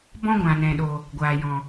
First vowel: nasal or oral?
nasal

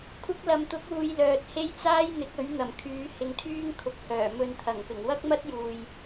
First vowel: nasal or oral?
oral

